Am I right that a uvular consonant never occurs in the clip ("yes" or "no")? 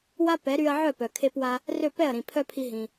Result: yes